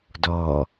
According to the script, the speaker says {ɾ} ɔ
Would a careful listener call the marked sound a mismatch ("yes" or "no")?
yes